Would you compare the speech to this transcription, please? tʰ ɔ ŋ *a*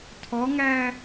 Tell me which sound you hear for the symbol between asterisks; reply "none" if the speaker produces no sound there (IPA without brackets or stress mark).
æ